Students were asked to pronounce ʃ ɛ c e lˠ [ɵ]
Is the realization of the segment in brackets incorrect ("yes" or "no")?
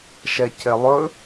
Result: no